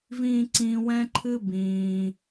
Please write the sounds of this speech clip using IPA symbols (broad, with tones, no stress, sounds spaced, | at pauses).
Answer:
v ĩː˥ ǀ ĩː˦ w ɛ̃˦ ǃʰ ɨ˦ b ĩː˨